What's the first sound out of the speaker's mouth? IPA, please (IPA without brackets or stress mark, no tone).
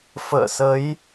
f